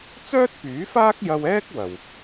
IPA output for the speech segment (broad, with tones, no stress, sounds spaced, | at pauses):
t͡s œː˥ t̚ p yː˨˥ f aː˥ k̚ j ɐ˧ w ɛː˥ k̚ w ɐ˨ w